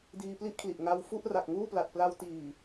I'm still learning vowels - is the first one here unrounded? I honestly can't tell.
yes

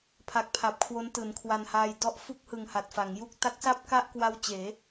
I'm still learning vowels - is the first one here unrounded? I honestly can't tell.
yes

